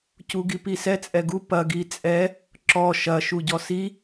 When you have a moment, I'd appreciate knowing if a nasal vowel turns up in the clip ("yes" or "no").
no